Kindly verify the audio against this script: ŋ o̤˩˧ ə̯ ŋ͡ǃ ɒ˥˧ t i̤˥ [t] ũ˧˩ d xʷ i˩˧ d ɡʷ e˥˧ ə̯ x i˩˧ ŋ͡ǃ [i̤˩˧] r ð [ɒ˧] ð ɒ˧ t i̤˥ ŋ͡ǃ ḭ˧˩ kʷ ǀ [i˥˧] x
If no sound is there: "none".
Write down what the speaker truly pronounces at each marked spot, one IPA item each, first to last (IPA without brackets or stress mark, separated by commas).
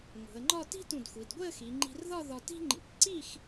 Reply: t, i̤˧, ɒ˥˧, i˥˧